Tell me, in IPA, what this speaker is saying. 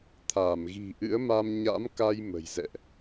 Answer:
t̪ʰaː˧˩mɣi̤˨˩ʔɨ̰˧˥ə̯ma˧m ɲa̰˧˥mka˧j mə̤˨˩jzɛ̰˧˨ʔ

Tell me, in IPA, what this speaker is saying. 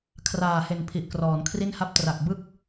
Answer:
kʰraː˨˩he˨˩n pʰi˨˩ʔkrɔː˩˦nkʰri˥˩n ha˦˥p̚tra˨˩k̚ bɯ˥˩k̚

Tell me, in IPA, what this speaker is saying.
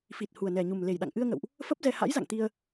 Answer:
fi˨˩t̚ hu˨˩ə̯nɛ˨˩ɲu˨˩m le˨˩jɗa̰˧˨ŋʔɨ˧ə̯ŋə̰˧˨wʔ | fə˦˥p̚zɛ˧ ha̰˧˥jza̰˧˨ŋt̪i˧ə̯

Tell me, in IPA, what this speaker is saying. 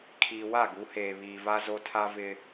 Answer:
kʰiː˨wa˦˨ɡu˨˦heː˨ βiː˨va˦ zo˦tʰa˦vɪ˦

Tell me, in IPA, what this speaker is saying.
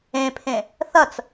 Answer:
ẽpʰẽ | θɐt͡s

